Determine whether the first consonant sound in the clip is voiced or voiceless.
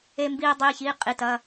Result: voiced